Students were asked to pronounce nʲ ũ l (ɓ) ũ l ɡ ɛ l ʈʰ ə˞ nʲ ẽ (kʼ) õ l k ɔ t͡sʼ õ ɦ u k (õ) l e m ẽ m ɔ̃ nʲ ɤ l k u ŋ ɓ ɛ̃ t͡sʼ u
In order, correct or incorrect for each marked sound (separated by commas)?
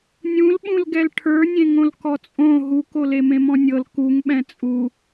correct, incorrect, incorrect